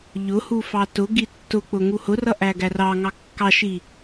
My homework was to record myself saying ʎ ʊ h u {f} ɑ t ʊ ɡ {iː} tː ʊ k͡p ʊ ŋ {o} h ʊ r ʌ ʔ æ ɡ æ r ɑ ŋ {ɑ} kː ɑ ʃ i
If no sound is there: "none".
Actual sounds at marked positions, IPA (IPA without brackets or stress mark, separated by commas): f, i, u, ɑ